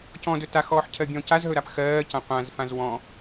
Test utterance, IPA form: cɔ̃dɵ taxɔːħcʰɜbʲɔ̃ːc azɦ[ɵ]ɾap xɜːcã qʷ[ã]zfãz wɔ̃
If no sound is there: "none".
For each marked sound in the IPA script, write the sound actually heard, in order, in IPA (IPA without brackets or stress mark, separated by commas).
ɵ, ã